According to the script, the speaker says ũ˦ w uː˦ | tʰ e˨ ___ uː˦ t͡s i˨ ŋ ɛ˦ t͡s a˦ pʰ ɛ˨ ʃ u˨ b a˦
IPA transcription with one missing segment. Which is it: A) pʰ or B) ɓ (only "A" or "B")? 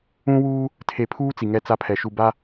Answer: A